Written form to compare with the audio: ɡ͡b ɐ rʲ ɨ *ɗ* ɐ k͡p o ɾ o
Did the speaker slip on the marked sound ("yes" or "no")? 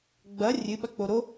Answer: yes